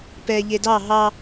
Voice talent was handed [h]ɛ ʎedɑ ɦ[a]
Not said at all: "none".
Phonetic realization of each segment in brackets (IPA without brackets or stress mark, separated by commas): p, ɑ